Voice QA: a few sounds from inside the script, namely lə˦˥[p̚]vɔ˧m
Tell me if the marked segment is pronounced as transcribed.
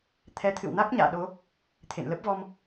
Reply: yes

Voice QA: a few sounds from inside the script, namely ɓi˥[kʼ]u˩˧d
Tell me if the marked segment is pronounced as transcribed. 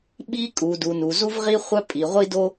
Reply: yes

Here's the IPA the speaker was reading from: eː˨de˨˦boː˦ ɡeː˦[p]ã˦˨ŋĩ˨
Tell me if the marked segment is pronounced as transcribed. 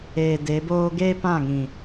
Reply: yes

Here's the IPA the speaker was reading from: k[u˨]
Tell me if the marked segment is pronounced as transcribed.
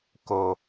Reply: no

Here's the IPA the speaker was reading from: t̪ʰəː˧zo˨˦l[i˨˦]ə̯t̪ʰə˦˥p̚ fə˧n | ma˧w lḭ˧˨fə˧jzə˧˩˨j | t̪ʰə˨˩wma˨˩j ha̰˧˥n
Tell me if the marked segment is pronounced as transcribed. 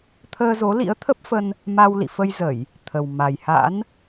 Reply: no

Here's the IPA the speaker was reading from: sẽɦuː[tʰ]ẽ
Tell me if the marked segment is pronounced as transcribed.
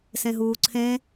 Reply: no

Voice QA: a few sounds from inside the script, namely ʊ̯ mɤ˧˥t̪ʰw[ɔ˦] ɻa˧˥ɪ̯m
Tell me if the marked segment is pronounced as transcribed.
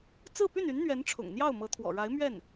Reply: no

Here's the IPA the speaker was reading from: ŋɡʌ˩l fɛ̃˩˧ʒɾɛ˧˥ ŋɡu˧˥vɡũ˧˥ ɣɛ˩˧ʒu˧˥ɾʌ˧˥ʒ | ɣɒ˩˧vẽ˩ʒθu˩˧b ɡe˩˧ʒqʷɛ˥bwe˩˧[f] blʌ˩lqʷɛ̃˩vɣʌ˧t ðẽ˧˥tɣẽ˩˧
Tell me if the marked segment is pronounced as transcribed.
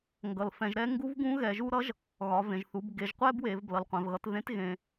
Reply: no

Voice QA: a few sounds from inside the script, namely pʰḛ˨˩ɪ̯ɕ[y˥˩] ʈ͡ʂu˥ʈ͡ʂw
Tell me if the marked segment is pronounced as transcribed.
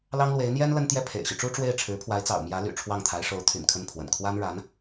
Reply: no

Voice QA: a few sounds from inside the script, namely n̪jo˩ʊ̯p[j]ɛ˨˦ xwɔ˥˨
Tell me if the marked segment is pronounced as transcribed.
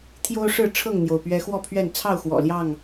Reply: no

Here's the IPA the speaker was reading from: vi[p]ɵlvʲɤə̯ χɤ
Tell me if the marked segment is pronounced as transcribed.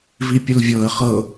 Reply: no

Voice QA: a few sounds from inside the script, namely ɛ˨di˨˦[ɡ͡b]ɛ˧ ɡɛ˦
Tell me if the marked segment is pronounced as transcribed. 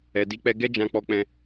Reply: no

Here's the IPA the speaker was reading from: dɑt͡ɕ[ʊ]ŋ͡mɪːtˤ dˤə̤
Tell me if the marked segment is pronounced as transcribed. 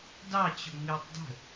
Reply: yes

